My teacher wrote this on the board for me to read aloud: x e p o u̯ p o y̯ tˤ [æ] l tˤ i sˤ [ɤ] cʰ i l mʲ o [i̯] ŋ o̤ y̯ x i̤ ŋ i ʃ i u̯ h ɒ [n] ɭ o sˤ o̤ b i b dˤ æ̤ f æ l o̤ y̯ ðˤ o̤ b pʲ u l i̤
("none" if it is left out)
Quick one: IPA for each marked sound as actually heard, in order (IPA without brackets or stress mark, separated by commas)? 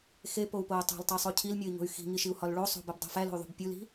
æ̤, o, i̯, l